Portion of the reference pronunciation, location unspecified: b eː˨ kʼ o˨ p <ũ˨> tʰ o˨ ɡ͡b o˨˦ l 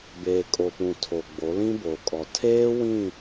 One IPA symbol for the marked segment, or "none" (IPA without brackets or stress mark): ũ˨